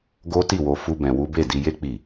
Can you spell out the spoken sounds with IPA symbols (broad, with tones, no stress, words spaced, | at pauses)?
ɡo˦ ti˦˨wo˧ fu˦bɛ̃˧wu˦ be˦˨di˧je˦ k͡pi˦˨